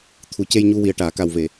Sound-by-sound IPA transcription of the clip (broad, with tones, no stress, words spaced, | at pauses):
t̪ʰu˨˩˦ce˧jɲu˧wi˨˩ə̯ ʈaː˨˩˨ka˨˩wve˨˩˨